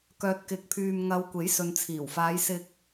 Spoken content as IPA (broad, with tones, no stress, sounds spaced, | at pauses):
k œː˨ t̚ k ɪ˨˥ k̚ pʰ yː˨ m ŋ ɐ˨ w kʷ e˨˥ j s ɵ˨ n t͡sʰ iː˨˩ w f aː˨˧ j s ɪ˧ k̚